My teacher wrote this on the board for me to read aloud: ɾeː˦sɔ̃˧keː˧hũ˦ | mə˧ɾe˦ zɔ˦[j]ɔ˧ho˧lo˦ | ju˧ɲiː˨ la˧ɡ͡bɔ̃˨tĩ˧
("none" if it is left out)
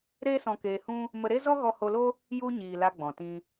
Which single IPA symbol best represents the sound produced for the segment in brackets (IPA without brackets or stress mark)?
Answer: ɣ